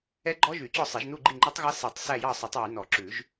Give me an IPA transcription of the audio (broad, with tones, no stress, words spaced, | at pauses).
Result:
ɛ˦˥ɡ͡ǃɔ˦˥ʒy˨˩˦t͡ɕɔ˦˨ sˤe˨˩˦ʒnu˦˨ ɡ͡ǃi˦˨ŋ͡ǃø˦˥tˤɣɑ˦˥ se˨˩˦tˤ sæ˦˨jɑ˦˨sˤɵ˨˩˦tˤ wy˨˩˦nɔ˨˩˦ǁʉ˨˩˦ʒ